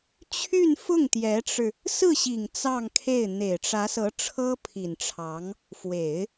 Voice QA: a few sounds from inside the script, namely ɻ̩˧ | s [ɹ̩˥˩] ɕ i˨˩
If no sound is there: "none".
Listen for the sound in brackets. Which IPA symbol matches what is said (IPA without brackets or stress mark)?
ɹ̩˥˩